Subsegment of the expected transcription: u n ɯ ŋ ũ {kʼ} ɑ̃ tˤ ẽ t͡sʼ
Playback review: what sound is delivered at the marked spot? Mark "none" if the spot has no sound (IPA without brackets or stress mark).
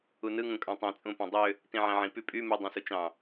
kʼ